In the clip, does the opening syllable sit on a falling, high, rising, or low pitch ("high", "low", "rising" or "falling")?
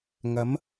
rising